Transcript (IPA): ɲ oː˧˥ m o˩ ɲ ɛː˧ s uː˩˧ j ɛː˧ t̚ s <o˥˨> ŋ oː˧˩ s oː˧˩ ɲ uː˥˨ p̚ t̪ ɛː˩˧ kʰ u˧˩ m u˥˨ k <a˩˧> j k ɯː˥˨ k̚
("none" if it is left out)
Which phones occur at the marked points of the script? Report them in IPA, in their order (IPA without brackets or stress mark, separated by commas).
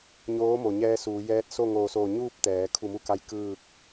o˥˨, a˧˥